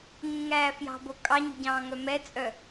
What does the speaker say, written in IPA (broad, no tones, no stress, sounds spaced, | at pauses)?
ŋ ũ ŋ æː f j ɑ̤ b o kʼ ɑ ɲ ṳ ɟ ɑ̃ː ŋ œ m ɛ t͡sʼ œ